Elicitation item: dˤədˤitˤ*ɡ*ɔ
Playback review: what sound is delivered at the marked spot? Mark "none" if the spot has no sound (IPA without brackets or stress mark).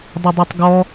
ɡ